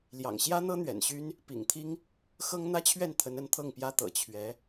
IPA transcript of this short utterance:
ljɑ̰˨˩ŋ ɕjä˥n̪ɤ˥ n̪ɥɛ̰˨˩nɕy˥n | pḭ˨˩ŋt̪ʰi˥ŋ | xɤ˥ŋ n̪ä˥t͡ɕʰɥɛ˥˩nt̪ʰə˧˥n ə˧˥nt̪ʰɤ˥˩ŋpjä˥t̪ɤ̰˨˩ t͡ɕʰɥɛ˧˥

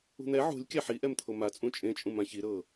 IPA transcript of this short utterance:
ṳn̪ɛ ʕṳlʲ kʲaħiʔɛmt̪ʰo mat͡sʼũ t͡ʃʼẽt͡ʃʼũm ãçi ɾɤ

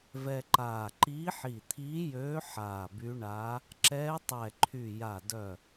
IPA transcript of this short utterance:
vɛ˧ǃaː˧˩ ǃiː˧˥ħi˧˩t̪ʰiː˧˥jøː˧˥ ħaː˧˩by˧˥ ɳa˧˥ | ǁɛː˧˥tˤɛ˧˩ǃʰy˧˩ ja˧˩dœ˧˩

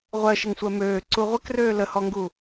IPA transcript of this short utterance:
ʁʷɜʃəŋsʷɜ møː ǀuʁʷəkrøː ləhɔŋɡu

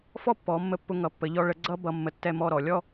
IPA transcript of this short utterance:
fɔ˥pːɔ˩˧mːə˧ pːʊ˧ŋʌ˩˧pːə˩˧ʎɔ˧ ɭə˧ɡ͡ǀʌ˥bʌ˧ mːə˧˩ tːɛ˥˧mɔ˥˧ɾɔ˩˧ lʲɔ˥

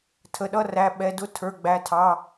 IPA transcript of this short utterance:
tʰə˩˧˩ɗʌ˧˥˧ræ˩˧˩ ɓɛ˩˧˩dʊ˧˥˧ tʰə˞˩˧˩ɡ͡bæ˩˧˩tʰɑ˩˧˩

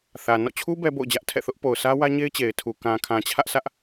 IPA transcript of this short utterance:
θä˨ nɔ̰˦˨t͡ɕʰu˦ bɛ˦bo̰˦˨ʊ̯d͡ʑä˦ʔ tʰɛ̰˦˨θʊ˦ʔ po˨ʊ̯sä˦wä˦ɲe˦ɪ̯ t͡ɕe˨ɪ̯tʰu˨ kã˨kʰã˨t͡ɕʰä˦ʔ sä˦ʔ

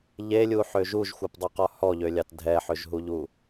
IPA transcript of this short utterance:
ʎelʲuħø ʒuʒxʷɛpdˤuqɔ hɔʎølʲɑt dʱɛħøʒɦuʎu

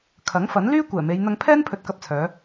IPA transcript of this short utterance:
kʰɐ˨˥ŋfɐ˨˥nlyː˥ kʷɛː˨˩me˨˧j n̪ɐ˧ŋpʰɛː˥n pʰɵ˧t̚kɐ˧p̚t͡sʰœː˨˧

